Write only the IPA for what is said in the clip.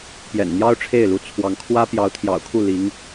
pjɛ̰˨˩nn̪jɑ˥ʊ̯ʈ͡ʂʰe˥˩ɪ̯lu˧˥ t͡sʰwɑ˧˥ŋkʰwä˥ pjɑ˧˥ʊ̯t̪ʰjɑ̰˨˩ʊ̯kʰu˥˩ li˧˥ŋ

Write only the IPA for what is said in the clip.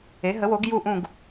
e˩˥ɦə˩˥wo˩˥ɡ ju˥˨ʔũ˥˨ɡ

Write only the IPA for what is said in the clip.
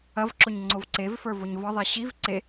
ɐvǁoɲ ŋ͡ǀovǀevfə˞ voɲvɒðˤɛ ɕiv ǀe

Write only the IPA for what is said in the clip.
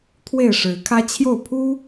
t̪ʰwe˥˨ɪ̯ʂɻ̩˨˦kʰä˦ t͡ɕʰjo˥˨ʊ̯pʰu˦

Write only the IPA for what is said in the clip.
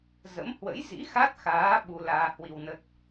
zə̰˧˥m hwə̰˧˥jzḭ˧˥ xa˦˥t̚xaː˨˦ ɓu˧laː˧hwi˧wnə˦˥t̚

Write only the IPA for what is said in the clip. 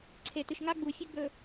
ǀʰe˨tɨ˨ʃŋa˦ ɡ͡bu˨fʲɨ˦ɡ͡bɵ˨

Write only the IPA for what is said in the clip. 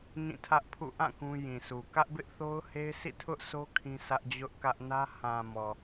ŋĩ˦˨tʰä˦ʔpʰṵ˦˨ ʔã˦˨ kũ˦jĩ˨sʰu˨ kä˦ʔbɪ˦ʔθo˦ʊ̯ he˦ɪ̯sʰḭ˦˨tʰʊ˦ʔso˦ kʰĩ˦sä˦ʔd͡ʑʊ˦ʔkä˦ʔ nä˦ hã˨ mɔ˨

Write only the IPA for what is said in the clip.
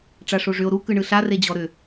ʈ͡ʂaʂoʐʏo̯ ɾukɯ ɳɯɬared͡ʑɔ ɾʏ

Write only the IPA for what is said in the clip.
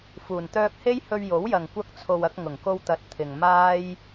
fuː˨˩nt̪œː˧k̚he˥jhɵ˧ɥ jo˨˥wjɐ˨ŋ kʷɐ˧k̚t͡sʰo˨w ɐ˧k̚ŋʊ˨˩ŋko˧wt̪ɐ˨˥t̚ t̪ʰɪ˨ŋmaː˥j

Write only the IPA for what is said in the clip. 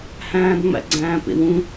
hæ̃ːdŋ͡mæ̰ɡ͡ǀæ̃ːpḛw ũ

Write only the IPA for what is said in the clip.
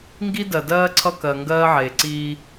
ŋɡi˦dɜ˨dɜː˦ ǀʰʌ˦kɜ˨ ŋɡɜː˦ʕeː˨ǀiː˦

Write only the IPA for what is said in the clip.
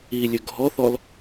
ilʲɵ ɡʱɔθɔl

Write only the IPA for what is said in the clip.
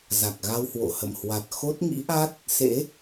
za˨˩k̚ɣa˧whwo̰˧˨hə̰˧˨m hwa˨˩t̚ xo˦˥t̚ŋḭ˧˥ʔa˦˥t̚ | sḛ˧˥

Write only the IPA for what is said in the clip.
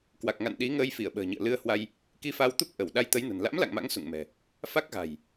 kwa˨˩k̚ŋa̰˧˨n ɗi˨˦ ŋəː˧jfi˧˩ə̯ɓə̤ː˨˩ɲɨ̰˧˨ə̯ lɨ˧ə̯hwa˧j | ki˧fa˧wt̪u˦˥p̚ ʔə˧˩w ɗa˧jt̪ə˨˦jnə̤˨˩n la̰˧˥mla̰˧˨ŋ ma̰˧˥ŋ sṵ˧˨ŋmɛ̤˨˩ | fa˦˥k̚ɣa̤˨˩j

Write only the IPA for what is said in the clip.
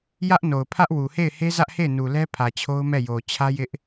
jä˦ʔno˨ʊ̯pʰä˦ʔwu˨ he˦˨ɪ̯he˦zä˦ʔhe˦˨ɪ̯ nu˨lɛ˦pʰä˨ t͡ɕʰo˦ʊ̯mɛ˦˨jo˨ t͡ɕʰä˦jɪ˦ʔ

